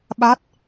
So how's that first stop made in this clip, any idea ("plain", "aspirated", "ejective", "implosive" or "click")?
implosive